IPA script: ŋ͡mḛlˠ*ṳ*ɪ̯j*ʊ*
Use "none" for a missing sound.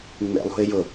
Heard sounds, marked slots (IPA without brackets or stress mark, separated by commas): ṳ, ʊ